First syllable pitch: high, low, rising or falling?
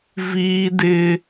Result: high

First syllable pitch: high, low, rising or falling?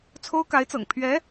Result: high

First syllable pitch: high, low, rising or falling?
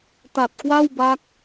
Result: low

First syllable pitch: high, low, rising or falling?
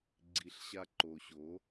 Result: rising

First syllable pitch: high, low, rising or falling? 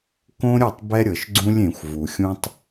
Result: high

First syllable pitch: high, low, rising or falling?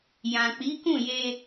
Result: low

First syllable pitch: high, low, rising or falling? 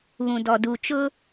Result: low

